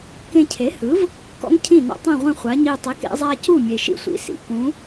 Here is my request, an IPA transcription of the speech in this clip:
k ẽ˧ cʰ e˩˥ h ɯ˩˥ v | k ɔ̰˥ ŋ cʰ ĩ˥˩ n ɔ̰˧ tˤ ĩ˥˩ ʁʷ ẽ˥˩ χʷ a˩˥ ɲ i˧ tˤ i˩˥ k ḛ˥ zˤ a˥ c u˥˩ mʲ e˩ ʃ ḭ˥˩ sʷ ḭ˩˥ s ḭ˩ k ũ˩˥

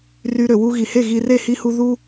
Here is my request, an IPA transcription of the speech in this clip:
r y˧ ɾ ø˨ w u˧ ɣ i˨ h e˦˨ ɣ i˨ r e˦˨ h i˧ h u˧ ð u˦

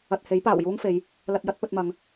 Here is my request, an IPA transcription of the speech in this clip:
ɐ˧ t̚ h e˨˥ j p aː˨˩ w j uː˥ ŋ f e˨˧ j | l ɐ˧ t̚ j ɐ˥ t̚ p ɵ˧ t̚ m ɐ˨˧ ŋ

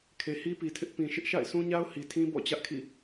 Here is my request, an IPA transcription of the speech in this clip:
kʰ e˨ h i˦ p i˨ tʰ ɪ˦ ʔ p ĩ˨ ʃ ɪ˦ ʔ ʃ a̰˦˨ ɪ̯ s ũ˦ ɲ a˦ ʊ̯ h i˨ tʰ ĩ˦ b ɔ̰˦˨ t͡ɕ ä˦ ʔ kʰ ḭ˦˨

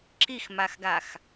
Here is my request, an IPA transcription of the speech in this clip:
ǁ i x m a x ɡ a x

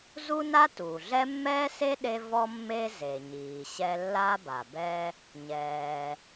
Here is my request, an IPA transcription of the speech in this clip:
z u˥ n a˥ t uː˩ ɮ ɛ˥ mː ɛː˥ s e˥ ɗ e˥ v ɔ˥ mː e˥ z e˩ ɲ iː˩ ɕ ɛ˥ lː a˥ b a˩ b ɛ˥ | ɲ ɛː˩

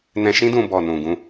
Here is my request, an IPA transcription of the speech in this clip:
n ɛ̃˧ ʃ ĩ˦ d ũ˧ b ɔ˨ n ũ˨ ɡ ũ˧

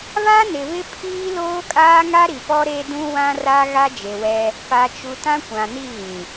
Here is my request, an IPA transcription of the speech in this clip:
β a˦ n ɪ˨ β ɪ˦ pʰ iː˦ l oː˦ kʼ aː˦ ŋ a˦ ɾ i˨ p ɔ˦ ɾ e˦ d ũ˦ w ã˦ r a˦ ɣ a˦ d͡ʒ e˨ w ɛ˦ | p a˨ t͡ʃ u˨ t ã˦ kʷ ã˨ n i˦˨ ɣ ĩ˨

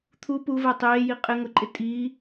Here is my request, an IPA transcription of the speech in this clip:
t̪ʰ u p u v ɛ tˤ eː j i qʼ ɪ ŋ ʊ ǃʼ ɪ tʼ i

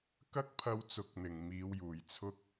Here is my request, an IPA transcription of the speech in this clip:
k ɐ˥ k̚ pʰ ɐ˧ w t͡s ʊ˨˥ k̚ n̪ ɪ˨˩ ŋ m iː˨˧ w j uː˨˩ j t͡sʰ ʊ˥ k̚

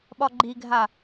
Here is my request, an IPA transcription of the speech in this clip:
ɓ ɒ ɡ͡ǃ i ɡʱ a

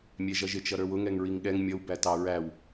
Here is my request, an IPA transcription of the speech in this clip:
mʲ ɛ ʒ ʌ ʒ ɪ t͡ʃ ʌ ɾ ə˞ w ʊ ŋ ɛ ŋ ɹ i ŋ ɠ ɛ ŋ mʲ ʌ w b æ t ɑ ɹ æ w

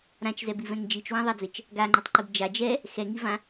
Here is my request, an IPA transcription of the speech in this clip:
ɾ ã t͡ʃ z ɛ b i v ɛ̃ ŋ d͡ʒ i t͡ʃ w ã ðˤ a d͡z ɘ t͡ʃ | ɡ a ŋ͡ǃ ɛ tˤ ǃ i b d͡ʒ a d͡ʒ ɛ | x ɛ ŋ i v ã

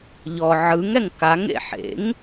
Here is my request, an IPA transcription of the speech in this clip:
ʎ ɔ ʕ ɯ ŋ ɛ ŋ k a ŋ ḛ ħ ḛ ŋ

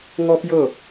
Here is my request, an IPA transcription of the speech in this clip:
ŋ ɔ˦ p j ɤ˦˨

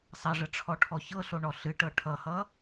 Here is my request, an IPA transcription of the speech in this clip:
sˤ ɐ ʐ ə ʈ͡ʂʰ ɔ ʈʰ ɔ ç ɤ ɬ o ɳ ɔ ɬ ɨ ʈ ɤ ʈʰ ʌ h ʌ

